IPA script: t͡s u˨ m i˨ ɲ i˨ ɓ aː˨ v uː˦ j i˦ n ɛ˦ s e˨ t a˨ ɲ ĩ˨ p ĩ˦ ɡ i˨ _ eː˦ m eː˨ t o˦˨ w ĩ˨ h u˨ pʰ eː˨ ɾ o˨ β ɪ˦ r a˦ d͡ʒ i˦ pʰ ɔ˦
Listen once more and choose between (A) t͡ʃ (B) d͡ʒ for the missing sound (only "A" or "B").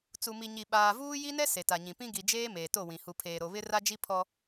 B